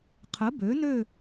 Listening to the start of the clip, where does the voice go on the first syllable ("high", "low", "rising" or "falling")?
rising